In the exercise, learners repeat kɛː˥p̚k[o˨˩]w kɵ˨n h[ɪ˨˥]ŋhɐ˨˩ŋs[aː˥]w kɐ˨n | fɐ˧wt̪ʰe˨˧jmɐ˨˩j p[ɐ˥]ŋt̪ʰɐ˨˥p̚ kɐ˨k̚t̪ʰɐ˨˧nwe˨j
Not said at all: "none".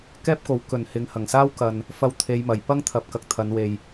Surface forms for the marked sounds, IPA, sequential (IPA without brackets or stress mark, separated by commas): o˨˥, ɪ˨˥, aː˥, ɐ˥